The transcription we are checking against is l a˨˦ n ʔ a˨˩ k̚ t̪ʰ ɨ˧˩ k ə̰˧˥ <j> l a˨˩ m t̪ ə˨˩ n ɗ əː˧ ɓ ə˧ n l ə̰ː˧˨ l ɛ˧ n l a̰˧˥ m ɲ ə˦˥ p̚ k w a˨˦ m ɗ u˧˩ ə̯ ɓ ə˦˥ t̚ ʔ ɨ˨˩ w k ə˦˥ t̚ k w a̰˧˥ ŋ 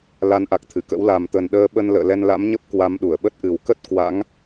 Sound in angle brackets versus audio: incorrect: w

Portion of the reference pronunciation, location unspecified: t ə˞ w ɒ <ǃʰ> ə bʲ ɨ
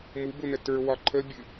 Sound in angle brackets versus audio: correct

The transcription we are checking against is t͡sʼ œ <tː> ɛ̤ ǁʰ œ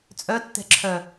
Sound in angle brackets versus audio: correct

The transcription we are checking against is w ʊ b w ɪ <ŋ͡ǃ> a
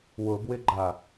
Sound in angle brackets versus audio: incorrect: ɡ͡ǃ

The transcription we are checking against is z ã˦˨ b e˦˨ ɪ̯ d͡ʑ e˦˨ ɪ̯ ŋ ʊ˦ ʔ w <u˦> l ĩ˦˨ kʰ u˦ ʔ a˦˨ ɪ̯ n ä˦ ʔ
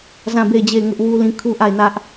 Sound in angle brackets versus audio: correct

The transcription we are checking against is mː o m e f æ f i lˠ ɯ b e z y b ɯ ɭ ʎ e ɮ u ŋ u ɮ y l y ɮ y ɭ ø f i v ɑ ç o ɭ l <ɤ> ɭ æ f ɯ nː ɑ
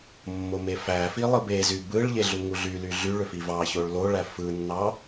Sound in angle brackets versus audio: incorrect: o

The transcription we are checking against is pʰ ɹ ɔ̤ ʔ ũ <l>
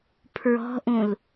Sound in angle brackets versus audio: correct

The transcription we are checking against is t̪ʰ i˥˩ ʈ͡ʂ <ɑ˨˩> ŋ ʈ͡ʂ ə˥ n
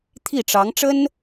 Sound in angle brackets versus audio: incorrect: ɑ˧˥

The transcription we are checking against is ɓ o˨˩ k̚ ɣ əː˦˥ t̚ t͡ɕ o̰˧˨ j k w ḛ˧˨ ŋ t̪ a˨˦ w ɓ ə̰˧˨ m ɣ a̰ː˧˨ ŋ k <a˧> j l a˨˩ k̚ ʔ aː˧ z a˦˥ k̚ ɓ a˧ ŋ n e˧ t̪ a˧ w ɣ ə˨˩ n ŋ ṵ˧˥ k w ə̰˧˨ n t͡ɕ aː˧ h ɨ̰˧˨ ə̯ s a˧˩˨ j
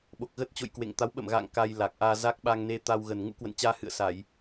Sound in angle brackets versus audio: correct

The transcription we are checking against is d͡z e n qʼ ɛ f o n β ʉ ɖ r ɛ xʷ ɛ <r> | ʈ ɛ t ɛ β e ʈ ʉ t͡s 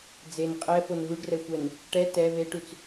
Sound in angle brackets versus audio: incorrect: n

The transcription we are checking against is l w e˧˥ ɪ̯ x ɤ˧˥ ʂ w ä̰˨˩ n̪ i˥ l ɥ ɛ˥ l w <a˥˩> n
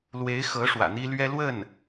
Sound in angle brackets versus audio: incorrect: ə˥˩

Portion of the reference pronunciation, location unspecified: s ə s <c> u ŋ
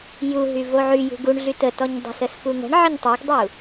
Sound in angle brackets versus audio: incorrect: k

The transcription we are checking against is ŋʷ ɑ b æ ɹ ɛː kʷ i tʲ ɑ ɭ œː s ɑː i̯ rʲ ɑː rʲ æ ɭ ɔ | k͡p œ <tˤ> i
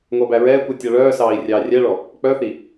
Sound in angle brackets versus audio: incorrect: θ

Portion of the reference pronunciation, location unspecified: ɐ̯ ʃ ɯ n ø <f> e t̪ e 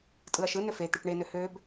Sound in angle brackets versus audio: correct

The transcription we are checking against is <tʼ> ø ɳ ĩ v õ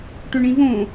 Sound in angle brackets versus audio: incorrect: ʈ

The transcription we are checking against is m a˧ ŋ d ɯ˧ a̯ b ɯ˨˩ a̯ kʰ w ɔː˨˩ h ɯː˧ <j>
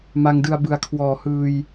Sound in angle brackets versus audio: correct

